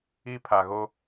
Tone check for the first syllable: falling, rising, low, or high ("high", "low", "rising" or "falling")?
high